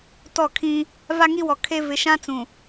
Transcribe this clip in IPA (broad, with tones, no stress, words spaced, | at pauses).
tɔ˦˨kʰĩ˦ | va˦ŋi˦wɔ˨ kʰe˦ vɪ˨ʃã˦t͡sũ˨